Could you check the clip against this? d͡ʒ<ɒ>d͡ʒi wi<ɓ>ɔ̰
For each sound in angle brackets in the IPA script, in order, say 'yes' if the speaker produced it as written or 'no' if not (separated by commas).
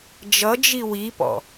no, no